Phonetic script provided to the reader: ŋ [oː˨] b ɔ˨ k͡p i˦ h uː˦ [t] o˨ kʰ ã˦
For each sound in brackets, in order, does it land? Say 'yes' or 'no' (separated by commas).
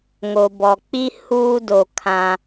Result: no, no